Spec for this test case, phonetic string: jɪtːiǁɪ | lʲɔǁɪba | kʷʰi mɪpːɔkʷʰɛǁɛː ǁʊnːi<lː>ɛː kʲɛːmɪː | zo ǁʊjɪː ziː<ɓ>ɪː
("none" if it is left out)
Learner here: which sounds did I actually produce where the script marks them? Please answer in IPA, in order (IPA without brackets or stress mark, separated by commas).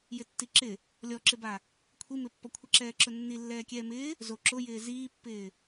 lː, pː